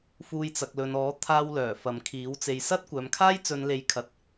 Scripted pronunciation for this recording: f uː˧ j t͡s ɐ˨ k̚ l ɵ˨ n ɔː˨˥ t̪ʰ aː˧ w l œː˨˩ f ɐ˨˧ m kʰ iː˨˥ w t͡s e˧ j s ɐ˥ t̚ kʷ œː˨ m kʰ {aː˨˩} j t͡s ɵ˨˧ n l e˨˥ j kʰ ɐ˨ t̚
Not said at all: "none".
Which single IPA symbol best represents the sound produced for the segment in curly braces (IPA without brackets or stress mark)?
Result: aː˥